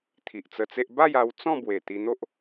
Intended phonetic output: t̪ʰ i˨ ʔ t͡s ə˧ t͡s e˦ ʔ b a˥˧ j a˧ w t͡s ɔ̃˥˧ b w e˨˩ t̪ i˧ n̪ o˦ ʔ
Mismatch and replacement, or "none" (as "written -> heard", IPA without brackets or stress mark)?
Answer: none